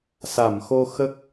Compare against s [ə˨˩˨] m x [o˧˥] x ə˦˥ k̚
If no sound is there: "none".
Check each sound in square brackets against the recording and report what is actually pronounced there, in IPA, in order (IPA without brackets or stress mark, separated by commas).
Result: a˨˩˨, o˧